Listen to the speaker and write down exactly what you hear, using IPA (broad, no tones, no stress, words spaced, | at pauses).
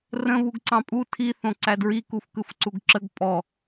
rə̃ βuɡǀɑ̃pʼu tʰi θõǀædɹi kufkɯfǀuɡǁəɡ pʼɔ